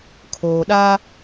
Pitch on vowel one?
low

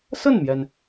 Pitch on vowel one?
falling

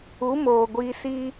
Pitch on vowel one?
rising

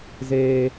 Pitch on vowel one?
high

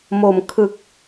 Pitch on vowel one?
low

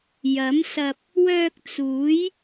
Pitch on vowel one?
rising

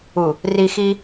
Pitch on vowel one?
low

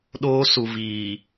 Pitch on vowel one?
high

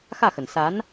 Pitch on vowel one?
falling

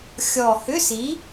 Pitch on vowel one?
low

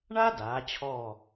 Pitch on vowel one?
high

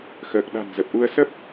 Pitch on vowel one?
low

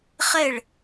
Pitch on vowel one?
falling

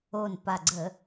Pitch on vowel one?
low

